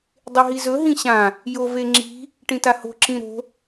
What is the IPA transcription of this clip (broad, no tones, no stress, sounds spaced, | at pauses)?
dˤ e ɦ i z ɵ ɦ ĩ ɕ ã | j o v e ŋ͡ǁ i̤ | ʈ ĩ t a h o̤ ǁ ĩ ɾ o̤